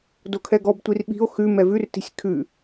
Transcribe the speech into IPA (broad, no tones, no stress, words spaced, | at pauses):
dokʰɛɡɔbtʷir ɓi̤o̯ xʉmɛ vʉrti̤sʲ kʰʉ